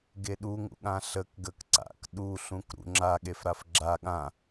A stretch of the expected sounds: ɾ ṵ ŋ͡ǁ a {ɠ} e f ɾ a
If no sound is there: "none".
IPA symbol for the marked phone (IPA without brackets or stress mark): ɠ